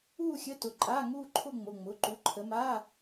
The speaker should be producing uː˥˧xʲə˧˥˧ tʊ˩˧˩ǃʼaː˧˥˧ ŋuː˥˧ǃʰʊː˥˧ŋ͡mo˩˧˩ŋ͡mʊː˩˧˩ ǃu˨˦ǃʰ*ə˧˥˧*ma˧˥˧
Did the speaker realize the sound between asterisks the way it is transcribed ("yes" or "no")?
no